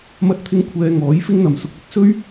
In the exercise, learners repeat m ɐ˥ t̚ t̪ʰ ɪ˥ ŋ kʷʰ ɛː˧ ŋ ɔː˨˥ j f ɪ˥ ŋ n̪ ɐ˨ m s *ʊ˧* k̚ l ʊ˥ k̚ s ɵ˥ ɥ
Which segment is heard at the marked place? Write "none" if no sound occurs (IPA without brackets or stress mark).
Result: ʊ˧